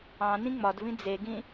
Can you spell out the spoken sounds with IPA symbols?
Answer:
ɑ̃ n ĩ ŋ͡m ɒ d v ĩ d͡z e ɡ ĩ

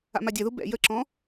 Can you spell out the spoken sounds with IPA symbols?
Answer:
a̰ m a dʲ ɐ ð u b ɛ̰ j ə ǁ ɔ̃

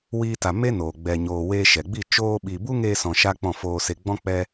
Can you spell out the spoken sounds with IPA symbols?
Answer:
w iː˧ t a˨ m e˦ n oː˨ ɡ͡b ɛ˨ ɲ oː˨ w eː˧ ʃ ɛ˨ ɡ͡b i˦˨ t͡ʃ oː˧ ɓ i˨ b u˦ ŋ eː˧ s ɔ̃˨ ʃ a˦ k͡p ɔ̃˦˨ f oː˧ s e˧ ɡ͡b ɔ̃˦ k͡p ɛ˦

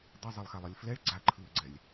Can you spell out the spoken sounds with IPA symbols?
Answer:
d ʌ zˤ e lˠ x a lˠ ʌ lʲ f l ɛ ɭ ɡ͡ǀ a ǃʰ ɯː ɡ͡ǀ ɛ lʲ

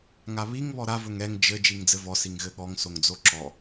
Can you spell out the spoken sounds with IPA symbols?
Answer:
ŋ a β i ŋ β ɔ ɾ a v ɵ ŋ ɛ ŋ d͡ʒ ɘ d͡ʒ i ŋ d͡z ɘ v ɔ s i ŋ ɣ ɘ ɠ ɔ ŋ s o ŋ d͡z o ǁ ɔ

